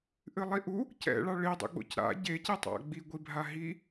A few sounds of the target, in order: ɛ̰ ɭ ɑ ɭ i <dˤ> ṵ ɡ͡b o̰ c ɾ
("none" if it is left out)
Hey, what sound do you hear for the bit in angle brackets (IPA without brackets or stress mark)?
dˤ